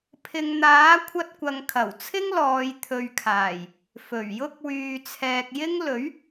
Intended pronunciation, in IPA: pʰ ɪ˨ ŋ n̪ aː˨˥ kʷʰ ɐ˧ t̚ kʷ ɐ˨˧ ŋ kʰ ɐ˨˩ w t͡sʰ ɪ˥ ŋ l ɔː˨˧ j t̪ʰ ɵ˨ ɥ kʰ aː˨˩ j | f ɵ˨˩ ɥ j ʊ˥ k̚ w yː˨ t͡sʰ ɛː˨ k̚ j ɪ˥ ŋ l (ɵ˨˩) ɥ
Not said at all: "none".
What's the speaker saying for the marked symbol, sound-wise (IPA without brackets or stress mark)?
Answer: ɵ˨˥